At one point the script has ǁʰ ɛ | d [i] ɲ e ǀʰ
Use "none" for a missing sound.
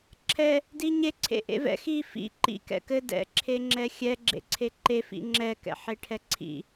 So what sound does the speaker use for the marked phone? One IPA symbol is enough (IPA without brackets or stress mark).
i